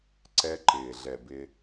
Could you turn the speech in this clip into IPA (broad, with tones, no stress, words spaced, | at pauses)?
ǀɛ˨ǃɪː˩ɮɛ˩ bɪ˨